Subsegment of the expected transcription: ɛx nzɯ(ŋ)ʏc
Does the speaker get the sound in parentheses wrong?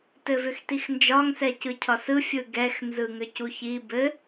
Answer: no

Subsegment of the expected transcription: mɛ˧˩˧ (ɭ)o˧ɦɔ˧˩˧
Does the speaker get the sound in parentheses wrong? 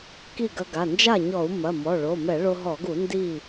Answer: no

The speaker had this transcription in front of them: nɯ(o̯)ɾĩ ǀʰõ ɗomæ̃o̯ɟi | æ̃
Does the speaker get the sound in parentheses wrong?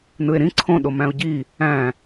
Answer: yes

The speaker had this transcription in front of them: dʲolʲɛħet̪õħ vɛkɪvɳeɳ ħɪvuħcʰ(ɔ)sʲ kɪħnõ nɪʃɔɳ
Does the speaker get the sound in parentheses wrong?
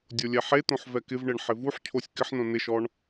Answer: yes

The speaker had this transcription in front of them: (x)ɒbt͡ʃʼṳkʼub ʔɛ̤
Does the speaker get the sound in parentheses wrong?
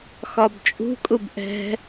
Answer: no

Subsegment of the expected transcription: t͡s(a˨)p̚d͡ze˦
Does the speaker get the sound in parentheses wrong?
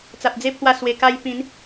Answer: no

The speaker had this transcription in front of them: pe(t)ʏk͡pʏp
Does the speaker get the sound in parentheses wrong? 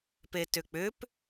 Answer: no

